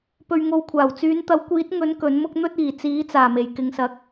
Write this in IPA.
p ɵ˨ ɥ ŋ o˨ w kʷʰ aː˨˩ w t͡s yː˨˧ n t̪ ɐ˨˥ w kʷ iː˨˥ t̚ ŋ ɵ˨˥ n k ɵ˨˥ n m ʊ˥ k̚ n̪ ɵ˥ t̚ iː˨˩ t͡s iː˨˥ t͡s aː˨˩ m e˨˩ j k ɪ˨ ŋ s ɐ˨˥ k̚

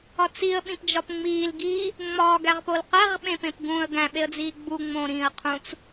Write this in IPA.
ɒ t͡s i ə̯ ɓ ĩ p d͡ʒ ɒ p ŋ͡m iː l ɡ iː | ŋ͡m ɒ ɡ æ ʁ p o l q æ ʁ ɓ ẽ p ẽ p ɡ ũ ə̯ ɡ æ̃ ɓ e ə̯ d͡z iː ɡ͡b u ŋ͡m õ ɾ ĩː ə̯ qʰ ũ t͡s

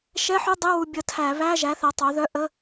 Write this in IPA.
ʃ ɛ˧˥˧ ħ u˧˥˧ dˤ ɨ˧˥˧ w u˧ bʲ ə˧ tʰ æ˧˩˧ β æ˧˥˧ ʒ æ˩˥ θ ɛ˩˥ tˤ œ˩˥ ð œ˧˥˧ ʔ ə˧˥˧

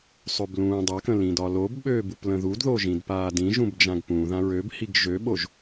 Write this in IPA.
sˤ ø b l ũː dˤ a k ə̃ l ĩ d ɒ l o b ɓ øː b u p l ə̃ ð u d ð o ʒ ĩ d p aː d ĩ ʒ ũ b d͡ʒ ã ɡ p ũ ð ã ɹ ø b h i ɡ ʒ ø ɓ o ʒ

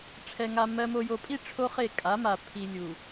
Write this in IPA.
ʈ͡ʂʰ ɛ˨ ŋ a˨ m ɜ˨ m o˨ j o˨ pʼ i˦˨ ʈ͡ʂʰ o˦ χ e˦˨ kʼ a˨˦ m a˨ pʰ i˨ lʲ u˨

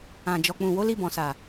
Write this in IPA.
ã˨ d͡ʒ ɔ˨ k͡p ũ˨ w o˨˦ l i˧ b ɔ̃˨ s a˨

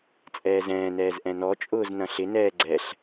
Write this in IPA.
t͡sʼ ɛː z ɛ̃ː n ɛː z ʔ ɛ̃ n ɔ t͡ʃʼ ʊː z n ɐ̃ ɬ ɪ n ɛː ɡ͡ǀ ɛ ɬ

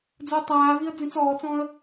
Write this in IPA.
d͡z ʊː tˤ aː v i ə̯ d͡z ĩ t͡s ɔː t͡s ɔ̃ ə̯

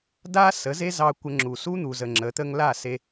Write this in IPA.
d a˦ s ə˨˦ z e˦ z ɑ˧ kʷ ə˧ ŋ͡ǁ u˨ s u˦ n̪ u˨ z ə˨ ŋ͡ǁ ə˨˦ t̪ ə˦ ŋ l a˦˨ s e˧

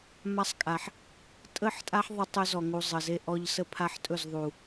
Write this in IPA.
m a˦ sˤ kʼ a˨ ħ | tʼ ə˦˨ ħ tʼ a˦ ħ ðˤ ə˦ tˤ ɵ˦ z ɔ˨ ŋ u˨ zˤ ə˨ z e˦ ʔ ɔ˦ ʎ s ə˦ pʰ a˦ ħ tʼ ɵ˦˨ z ðˤ u˨

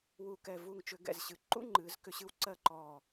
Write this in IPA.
w u˧˩ k ɛ˧˩ v u˧˩ ŋ t͡ʃ ʏ˧ ɡ ɛ̰˧˩ z ɕ ɨ˩˧ ǃ ṵ˥ ŋ͡ǃ ɨː˩˧ z k ʏ˧ ɕ ɨ˧ w ǀ ɜ˥˧ ǃ ɔː˧˩

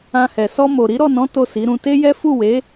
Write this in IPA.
ã˧ h ɛ˨ s ɔ˧ m o˨ ɾ i˨˦ ɾ ɔ˦˨ n ɔ̃˨˦ t o˦˨ s i˨˦ ɾ ũ˧ t e˦ j ɛ˦ f u˦˨ w e˨˦

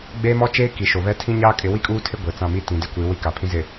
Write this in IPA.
ɡ͡b eː˦ m ɔ˦ t͡ʃ eː˦ k i˨ ʃ o˨ β ɛ˦ tʰ ĩ˦ ɲ aː˦ kʼ ɪ˨˦ w i˦ kʼ uː˦ tʰ ɪ˦ ɡʷ e˨ t͡s ã˦˨ m i˦ t ĩ˨ d ɪ˦ kʷ i˨˦ w i˦ k a˨ pʰ ĩ˦ z ɪ˨

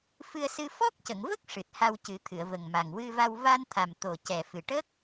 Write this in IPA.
f ɨ˧ ə̯ s ɨ˧ f ɔ˦˥ k̚ c ə˨˩˨ ŋ v ə˦˥ k̚ ʂ ɨ˨˩ t̚ h a˧ w c ɨ˨˩˦ t̪ʰ ɨ˨˩˨ ə̯ v ə˨˩ ŋ m a˨˩ ŋ w ɨ˧ v a˧ w v a˧ n t̪ʰ a˨˩ m t̪ o˨˩ c ɛ˨˩ f ɨ˨˩ ʈ ə˦˥ k̚

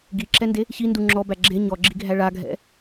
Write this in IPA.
ɡ i ǁ ɛ n d e | ç i n d u ŋ͡ǁ ɔ b æ ɡ͡ǁ e ɲ ɔ ɡ͡ǁ i ɡʱ æ ɭ a ɡʱ ɛ̰

